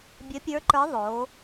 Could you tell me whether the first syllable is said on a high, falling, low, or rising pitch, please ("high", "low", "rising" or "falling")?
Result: rising